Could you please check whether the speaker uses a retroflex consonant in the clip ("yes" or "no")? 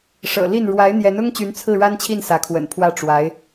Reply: yes